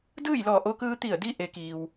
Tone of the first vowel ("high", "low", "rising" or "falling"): falling